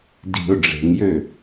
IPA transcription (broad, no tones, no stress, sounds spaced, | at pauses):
d i̤ ʊ̯ ɖ͡ʐ e̤ ŋ j ø